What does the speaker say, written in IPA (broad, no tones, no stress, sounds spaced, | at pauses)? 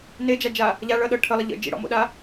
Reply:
n e d͡ʒ a d͡ʒ a | ʎ a ɭ ʌ ɗ ɤ ʈʰ ə lˠ ə ʎ ə̰ d͡ʒ ḭ ɽ ɔ̰ m o̰ ɗ a